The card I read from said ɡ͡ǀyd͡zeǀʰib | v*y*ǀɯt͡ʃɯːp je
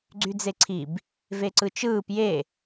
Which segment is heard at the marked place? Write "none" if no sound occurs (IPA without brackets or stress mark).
e